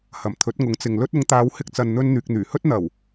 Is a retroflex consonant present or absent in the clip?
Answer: absent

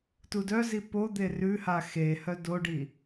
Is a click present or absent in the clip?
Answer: absent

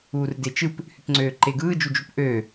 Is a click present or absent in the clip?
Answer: present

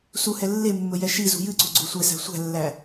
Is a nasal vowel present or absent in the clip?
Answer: absent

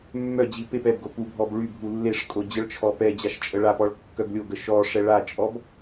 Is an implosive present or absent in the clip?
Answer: absent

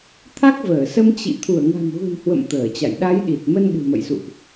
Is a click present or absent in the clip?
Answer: absent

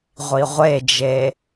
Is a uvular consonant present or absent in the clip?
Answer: present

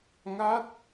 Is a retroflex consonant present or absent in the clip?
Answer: absent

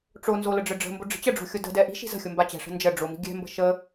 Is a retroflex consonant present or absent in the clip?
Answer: present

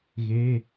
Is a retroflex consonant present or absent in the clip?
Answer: absent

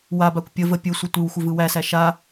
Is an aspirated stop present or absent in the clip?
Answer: absent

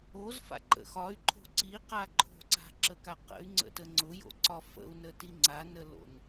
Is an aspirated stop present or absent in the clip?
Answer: present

